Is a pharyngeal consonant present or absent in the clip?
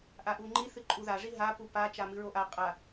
absent